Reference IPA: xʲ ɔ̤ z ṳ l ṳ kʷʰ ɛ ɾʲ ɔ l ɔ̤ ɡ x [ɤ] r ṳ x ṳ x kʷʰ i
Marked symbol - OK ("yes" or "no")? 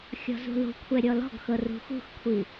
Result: yes